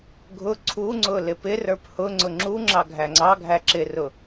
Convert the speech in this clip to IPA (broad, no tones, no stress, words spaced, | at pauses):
ɡʱʊ ǀʰuŋ͡ǀʊ lɪpɪrə˞p hʊŋ͡ǀʊ ŋ͡ǁu ŋ͡ǁɑɡʱæŋ͡ǀɑɡʱæ ǁɪrʊ